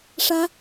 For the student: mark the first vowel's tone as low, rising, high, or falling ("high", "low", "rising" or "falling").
high